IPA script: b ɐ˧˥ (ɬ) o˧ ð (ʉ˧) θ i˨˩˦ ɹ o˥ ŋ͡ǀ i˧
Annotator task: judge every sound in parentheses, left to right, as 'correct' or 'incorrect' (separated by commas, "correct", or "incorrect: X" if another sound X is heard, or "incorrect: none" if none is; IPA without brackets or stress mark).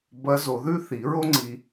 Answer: incorrect: z, incorrect: ʉ˥